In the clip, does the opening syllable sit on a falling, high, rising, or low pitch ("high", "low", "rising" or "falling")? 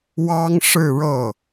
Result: high